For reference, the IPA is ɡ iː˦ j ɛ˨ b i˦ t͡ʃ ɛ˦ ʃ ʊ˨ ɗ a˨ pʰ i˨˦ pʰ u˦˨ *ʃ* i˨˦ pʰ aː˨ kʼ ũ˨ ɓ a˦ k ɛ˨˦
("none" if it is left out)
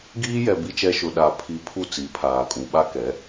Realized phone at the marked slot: t͡s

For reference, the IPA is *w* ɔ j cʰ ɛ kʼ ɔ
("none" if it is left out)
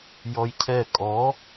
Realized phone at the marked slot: j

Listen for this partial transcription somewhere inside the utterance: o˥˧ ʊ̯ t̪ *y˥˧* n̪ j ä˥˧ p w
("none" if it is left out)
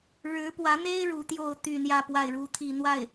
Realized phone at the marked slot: y˥˧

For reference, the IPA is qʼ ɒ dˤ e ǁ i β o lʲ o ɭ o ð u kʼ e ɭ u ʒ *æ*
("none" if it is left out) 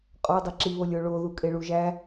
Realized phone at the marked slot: æ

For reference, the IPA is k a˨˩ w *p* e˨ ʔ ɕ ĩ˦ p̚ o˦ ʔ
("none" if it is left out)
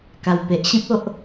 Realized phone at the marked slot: p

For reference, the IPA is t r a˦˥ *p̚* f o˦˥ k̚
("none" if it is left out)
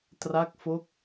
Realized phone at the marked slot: k̚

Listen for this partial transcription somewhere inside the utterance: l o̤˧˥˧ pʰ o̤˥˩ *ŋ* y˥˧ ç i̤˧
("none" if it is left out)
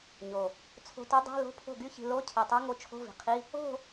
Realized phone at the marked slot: ɡ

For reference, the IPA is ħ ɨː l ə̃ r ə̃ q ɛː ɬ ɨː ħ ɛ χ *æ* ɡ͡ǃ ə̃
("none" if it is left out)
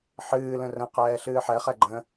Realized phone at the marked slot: ɛ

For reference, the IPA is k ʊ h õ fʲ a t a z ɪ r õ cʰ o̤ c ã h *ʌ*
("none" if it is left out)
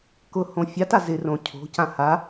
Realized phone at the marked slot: a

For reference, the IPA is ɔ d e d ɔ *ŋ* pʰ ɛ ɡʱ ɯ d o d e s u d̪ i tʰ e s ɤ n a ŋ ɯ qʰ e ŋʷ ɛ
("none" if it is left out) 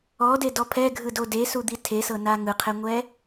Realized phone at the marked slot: none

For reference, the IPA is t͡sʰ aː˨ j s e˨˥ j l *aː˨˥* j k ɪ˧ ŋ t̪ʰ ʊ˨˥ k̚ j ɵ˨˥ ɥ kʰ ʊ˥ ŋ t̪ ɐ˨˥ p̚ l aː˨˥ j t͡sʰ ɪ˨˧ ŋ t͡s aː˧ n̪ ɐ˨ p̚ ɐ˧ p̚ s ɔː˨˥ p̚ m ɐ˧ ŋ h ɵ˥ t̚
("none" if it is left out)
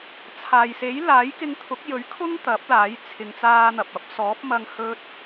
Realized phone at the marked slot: aː˨˥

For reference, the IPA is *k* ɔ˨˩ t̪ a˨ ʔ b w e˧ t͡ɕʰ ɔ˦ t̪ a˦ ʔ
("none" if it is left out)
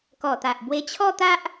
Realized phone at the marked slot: k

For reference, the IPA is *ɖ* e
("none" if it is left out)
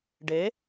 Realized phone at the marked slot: ɖ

